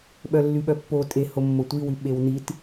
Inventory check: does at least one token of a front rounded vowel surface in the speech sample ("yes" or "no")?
yes